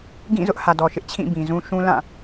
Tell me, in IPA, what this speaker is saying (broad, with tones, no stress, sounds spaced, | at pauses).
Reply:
ɡ ĩ˦˨ z ʊ˦ ʔ h ä˨ d ɔ˨ ʃ ɪ˦ ʔ t͡ɕʰ ĩ˦˨ b ĩ˨ z ũ˦ ʃ ũ˦ l ã˦˨